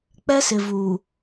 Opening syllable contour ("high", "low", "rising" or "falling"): high